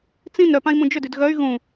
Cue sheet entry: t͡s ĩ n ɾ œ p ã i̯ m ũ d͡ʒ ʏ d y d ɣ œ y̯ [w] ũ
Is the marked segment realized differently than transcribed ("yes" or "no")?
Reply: yes